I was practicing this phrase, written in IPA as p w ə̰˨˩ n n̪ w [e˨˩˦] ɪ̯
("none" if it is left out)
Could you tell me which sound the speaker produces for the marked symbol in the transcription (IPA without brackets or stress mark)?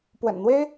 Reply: e˥